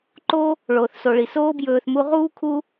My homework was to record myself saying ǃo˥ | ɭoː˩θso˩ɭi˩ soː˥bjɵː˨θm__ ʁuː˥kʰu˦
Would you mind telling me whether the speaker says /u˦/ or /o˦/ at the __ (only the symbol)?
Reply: u˦